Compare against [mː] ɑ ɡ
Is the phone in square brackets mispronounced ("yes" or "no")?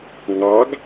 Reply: yes